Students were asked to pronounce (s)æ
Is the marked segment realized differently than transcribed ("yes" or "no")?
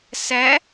no